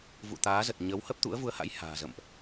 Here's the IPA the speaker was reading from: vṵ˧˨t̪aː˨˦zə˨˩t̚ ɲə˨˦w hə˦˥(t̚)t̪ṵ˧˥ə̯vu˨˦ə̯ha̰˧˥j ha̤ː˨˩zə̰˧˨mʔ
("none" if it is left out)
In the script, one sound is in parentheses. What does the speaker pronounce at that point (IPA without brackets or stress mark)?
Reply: p̚